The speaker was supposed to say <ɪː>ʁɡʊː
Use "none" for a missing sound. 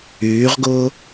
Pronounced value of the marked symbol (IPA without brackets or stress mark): yː